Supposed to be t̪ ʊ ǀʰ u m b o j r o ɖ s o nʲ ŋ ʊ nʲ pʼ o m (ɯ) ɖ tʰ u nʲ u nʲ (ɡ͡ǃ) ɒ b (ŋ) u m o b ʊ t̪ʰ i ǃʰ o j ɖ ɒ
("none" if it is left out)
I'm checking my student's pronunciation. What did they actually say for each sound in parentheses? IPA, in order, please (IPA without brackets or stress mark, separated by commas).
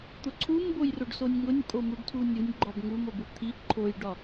u, ɡ͡ǃ, ŋ